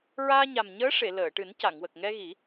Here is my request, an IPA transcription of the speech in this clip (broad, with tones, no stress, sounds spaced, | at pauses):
ɹ aː˧ ɲ a˨˩ m ɲ əː˧˥ ʂ e˨˩˨ l əː˨˩˨ ʈ ɨ˨˩˦ n c a˨˩˨ ŋ w ə˨˩ k̚ ŋ ɛ˧ ɣ i˨˩˦